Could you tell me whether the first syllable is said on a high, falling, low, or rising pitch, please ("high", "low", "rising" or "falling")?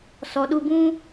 low